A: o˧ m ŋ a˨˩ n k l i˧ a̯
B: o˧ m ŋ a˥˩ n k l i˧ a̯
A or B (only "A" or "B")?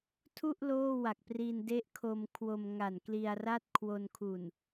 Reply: A